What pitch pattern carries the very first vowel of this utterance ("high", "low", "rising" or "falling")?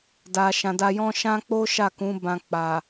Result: low